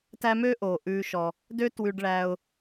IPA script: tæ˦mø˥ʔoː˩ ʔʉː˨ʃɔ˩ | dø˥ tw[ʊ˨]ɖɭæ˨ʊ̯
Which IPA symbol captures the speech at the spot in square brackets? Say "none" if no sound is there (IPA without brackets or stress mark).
ʉ˨